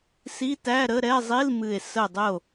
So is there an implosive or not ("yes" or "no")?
no